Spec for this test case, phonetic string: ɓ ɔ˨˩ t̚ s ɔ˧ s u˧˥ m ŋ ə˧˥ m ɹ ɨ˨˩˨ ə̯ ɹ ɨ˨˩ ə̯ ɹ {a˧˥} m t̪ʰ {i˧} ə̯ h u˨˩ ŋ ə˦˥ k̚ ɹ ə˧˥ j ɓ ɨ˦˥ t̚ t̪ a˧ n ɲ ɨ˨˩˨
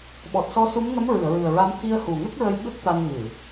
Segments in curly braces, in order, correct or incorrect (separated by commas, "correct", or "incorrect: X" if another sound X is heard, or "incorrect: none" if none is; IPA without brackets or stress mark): correct, correct